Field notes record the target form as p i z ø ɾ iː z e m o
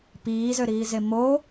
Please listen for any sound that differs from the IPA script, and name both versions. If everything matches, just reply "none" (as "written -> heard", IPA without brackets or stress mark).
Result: i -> iː